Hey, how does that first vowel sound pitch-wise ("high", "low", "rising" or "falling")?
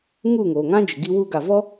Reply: falling